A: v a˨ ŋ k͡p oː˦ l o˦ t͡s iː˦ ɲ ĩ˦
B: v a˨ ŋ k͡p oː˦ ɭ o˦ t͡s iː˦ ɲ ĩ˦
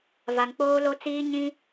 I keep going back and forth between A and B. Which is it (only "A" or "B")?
A